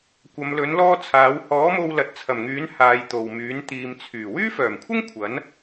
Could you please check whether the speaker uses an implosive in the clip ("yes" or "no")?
no